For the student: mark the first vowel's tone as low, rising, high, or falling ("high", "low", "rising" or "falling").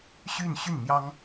falling